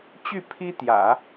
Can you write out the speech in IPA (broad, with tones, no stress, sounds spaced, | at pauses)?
t͡ɕ y˥˩ pʰ i˥ t̪ j ä̰˨˩˦